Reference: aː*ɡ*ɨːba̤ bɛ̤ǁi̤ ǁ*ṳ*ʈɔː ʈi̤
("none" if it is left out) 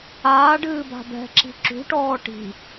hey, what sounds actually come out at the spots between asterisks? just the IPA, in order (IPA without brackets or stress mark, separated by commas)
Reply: ɖ, ṳ